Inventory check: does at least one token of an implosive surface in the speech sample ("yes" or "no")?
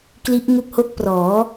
no